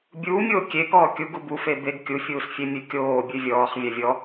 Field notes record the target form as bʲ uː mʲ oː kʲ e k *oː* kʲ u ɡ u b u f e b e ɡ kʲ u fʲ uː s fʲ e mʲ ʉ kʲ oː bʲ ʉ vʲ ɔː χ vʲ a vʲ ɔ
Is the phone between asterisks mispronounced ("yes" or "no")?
yes